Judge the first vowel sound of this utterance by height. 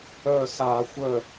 mid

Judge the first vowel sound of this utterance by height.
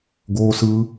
mid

